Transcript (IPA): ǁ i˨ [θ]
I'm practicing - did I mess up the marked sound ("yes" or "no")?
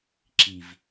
yes